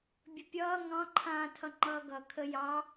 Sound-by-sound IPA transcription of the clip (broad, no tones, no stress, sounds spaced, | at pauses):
bʲ ə pʲ ʌː ŋ ɑ̃ ǃʰ ãː tʰ ʌ ŋ͡ǃ ʌː ɡ ʌ kʰ ə j ɑ